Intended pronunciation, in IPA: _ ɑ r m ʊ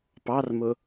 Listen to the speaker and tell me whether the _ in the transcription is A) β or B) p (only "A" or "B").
B